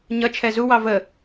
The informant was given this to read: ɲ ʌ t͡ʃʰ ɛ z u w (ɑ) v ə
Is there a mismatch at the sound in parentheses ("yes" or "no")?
no